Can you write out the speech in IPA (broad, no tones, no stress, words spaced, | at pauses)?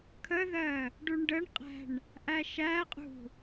kʰəðɜ | ɖuɳɖəɳqʼæ̤ɳ | ʔæʃæqʼṳ